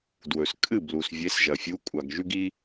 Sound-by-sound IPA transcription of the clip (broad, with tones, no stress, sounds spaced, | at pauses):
d w ɵ˩ s kʼ ɨ˥˩ b l u˩ s vʲ e˨˥ s ʒ ɐ˩ fʲ u˨˥ kʷʼ a˩ ɡ ʒ ʉ˦ ɡ i˦